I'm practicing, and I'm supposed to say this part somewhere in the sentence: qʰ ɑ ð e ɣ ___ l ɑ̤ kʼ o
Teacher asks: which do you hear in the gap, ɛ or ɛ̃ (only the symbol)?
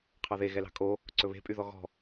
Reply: ɛ